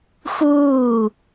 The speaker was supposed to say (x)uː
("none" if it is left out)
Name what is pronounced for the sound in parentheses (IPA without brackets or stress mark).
x